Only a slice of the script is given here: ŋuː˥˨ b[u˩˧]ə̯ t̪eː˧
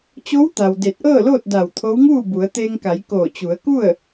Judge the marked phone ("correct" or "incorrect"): correct